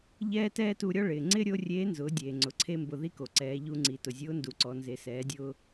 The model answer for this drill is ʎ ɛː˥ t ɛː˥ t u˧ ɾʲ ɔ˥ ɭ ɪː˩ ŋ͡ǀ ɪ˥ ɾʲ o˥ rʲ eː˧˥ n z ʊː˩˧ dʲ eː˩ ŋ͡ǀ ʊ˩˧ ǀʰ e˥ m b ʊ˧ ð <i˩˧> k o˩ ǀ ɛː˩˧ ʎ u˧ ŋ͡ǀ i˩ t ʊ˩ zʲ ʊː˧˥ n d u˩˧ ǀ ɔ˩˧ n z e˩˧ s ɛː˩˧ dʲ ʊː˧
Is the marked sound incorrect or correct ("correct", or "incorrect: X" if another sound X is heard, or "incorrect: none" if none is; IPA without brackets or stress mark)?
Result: incorrect: i˥